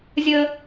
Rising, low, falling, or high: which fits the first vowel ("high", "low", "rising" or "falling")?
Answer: high